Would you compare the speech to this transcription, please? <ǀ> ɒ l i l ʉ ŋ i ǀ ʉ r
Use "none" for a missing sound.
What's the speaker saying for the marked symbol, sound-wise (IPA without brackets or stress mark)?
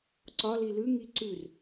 ǀ